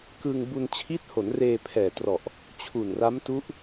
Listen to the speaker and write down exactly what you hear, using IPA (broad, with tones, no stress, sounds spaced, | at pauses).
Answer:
k ɯ˧ ŋ b u˧ n t͡ɕʰ i˦˥ t̚ h o˩˦ n r eː˧ pʰ ɛː˨˩ t r ɔ˨˩ ʔ | t͡ɕʰ u˨˩ n r a˦˥ m t u˦˥ ʔ